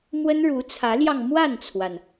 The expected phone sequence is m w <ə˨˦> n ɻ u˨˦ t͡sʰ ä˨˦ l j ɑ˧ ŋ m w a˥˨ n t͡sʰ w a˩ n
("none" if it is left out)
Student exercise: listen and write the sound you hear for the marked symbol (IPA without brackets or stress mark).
ə˦